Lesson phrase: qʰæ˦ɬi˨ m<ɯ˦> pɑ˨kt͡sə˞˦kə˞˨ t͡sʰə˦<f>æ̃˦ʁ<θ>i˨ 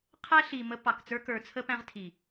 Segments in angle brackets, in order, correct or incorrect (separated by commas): incorrect, incorrect, incorrect